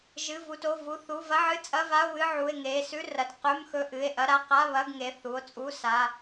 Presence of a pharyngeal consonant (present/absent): present